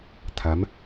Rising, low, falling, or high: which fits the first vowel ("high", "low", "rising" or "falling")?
rising